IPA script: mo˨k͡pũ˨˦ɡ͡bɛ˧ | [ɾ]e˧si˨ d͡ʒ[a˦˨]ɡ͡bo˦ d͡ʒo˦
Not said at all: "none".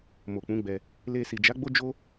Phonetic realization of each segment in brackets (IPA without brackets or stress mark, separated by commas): l, a˨˦